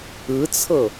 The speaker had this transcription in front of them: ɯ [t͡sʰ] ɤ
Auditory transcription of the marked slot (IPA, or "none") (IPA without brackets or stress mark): t͡sʰ